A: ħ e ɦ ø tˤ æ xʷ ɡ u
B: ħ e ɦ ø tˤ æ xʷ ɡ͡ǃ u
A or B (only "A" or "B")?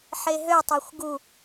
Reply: A